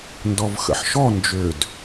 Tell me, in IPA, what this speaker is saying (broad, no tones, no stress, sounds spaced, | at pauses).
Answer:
n d ɔ v x ə̰ ħ ʃ ɔ n d͡ʒ ø d